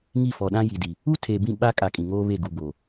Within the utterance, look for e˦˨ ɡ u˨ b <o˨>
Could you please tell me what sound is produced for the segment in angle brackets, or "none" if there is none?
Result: o˨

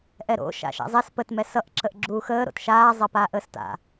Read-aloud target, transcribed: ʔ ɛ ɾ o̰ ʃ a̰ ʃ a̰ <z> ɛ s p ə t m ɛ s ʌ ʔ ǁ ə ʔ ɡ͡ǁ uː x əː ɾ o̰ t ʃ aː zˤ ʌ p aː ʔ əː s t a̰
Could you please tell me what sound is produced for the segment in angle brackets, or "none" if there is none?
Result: zˤ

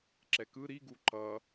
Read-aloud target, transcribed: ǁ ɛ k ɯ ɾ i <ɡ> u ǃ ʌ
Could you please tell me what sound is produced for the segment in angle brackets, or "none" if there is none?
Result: ɡ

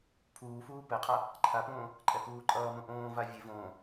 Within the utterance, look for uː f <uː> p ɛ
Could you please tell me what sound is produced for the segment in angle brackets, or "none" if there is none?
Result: uː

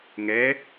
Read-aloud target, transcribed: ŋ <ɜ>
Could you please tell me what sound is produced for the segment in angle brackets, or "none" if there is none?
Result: ɛ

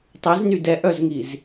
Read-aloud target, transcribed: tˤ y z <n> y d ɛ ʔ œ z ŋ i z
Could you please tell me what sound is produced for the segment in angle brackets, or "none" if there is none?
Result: n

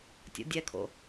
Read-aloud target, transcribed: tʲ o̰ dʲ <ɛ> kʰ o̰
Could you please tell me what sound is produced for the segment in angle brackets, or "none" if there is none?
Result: ɛ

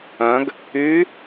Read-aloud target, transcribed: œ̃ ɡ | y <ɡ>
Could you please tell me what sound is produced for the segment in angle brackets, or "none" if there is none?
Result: none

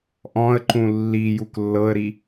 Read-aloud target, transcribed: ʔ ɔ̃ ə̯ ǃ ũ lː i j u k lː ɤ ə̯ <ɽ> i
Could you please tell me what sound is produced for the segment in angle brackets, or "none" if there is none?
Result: ɾ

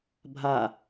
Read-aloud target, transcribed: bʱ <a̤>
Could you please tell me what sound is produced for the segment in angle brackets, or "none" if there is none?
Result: a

